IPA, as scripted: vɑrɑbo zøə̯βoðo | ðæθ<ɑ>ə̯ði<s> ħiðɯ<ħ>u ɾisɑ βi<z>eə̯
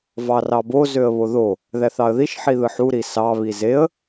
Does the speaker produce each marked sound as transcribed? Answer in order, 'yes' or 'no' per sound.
yes, no, yes, yes

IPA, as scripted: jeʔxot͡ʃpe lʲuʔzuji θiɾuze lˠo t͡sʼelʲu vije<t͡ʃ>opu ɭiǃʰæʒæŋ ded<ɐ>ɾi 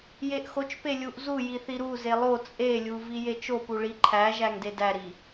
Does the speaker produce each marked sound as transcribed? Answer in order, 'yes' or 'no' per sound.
yes, no

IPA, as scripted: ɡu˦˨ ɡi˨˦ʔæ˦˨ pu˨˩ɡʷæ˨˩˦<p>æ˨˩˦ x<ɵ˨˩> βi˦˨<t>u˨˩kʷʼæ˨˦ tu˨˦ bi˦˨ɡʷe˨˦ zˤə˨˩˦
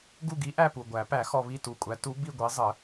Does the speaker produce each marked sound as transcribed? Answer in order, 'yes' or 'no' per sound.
yes, no, yes

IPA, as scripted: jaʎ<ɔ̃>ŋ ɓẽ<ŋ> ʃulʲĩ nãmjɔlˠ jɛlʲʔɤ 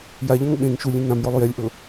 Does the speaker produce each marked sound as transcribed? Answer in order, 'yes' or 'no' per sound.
yes, yes

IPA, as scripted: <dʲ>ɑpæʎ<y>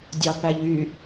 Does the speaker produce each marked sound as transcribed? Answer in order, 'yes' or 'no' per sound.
yes, yes

